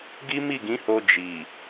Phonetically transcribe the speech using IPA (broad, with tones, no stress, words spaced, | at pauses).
ɡi˦mi˦˨ɡĩ˨˦ho˧ d͡ʒi˨